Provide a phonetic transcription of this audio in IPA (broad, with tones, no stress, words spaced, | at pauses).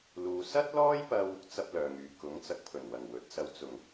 luː˨ sɐ˥t̚lɔː˥jpɐ˧w | t͡sɐ˥p̚ lœː˨ŋyː˨ kʊ˨˥ŋ t͡sɐ˧k̚pʰɵ˨˩n wɐ˨˩ŋwɵ˨˥t̚sɐ˧w t͡sʊ˨˩ŋ